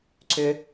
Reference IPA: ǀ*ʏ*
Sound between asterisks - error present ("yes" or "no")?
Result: no